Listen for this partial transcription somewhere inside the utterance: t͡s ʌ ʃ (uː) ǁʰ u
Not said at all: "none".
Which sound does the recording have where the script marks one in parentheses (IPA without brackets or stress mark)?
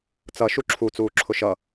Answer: u